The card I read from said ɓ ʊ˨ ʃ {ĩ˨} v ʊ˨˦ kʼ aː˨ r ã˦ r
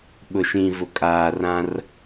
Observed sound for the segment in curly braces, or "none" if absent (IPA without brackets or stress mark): ĩ˨